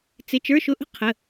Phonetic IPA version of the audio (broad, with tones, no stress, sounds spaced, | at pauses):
t͡s ɪ˧˥˧ t͡ʃ ə˞˧˥˧ ʃ ʊ˧˥˧ ʔ ə̤˥ qʰ ə˧˥˧